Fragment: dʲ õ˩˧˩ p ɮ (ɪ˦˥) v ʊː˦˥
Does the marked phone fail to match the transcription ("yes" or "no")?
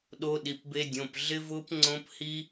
no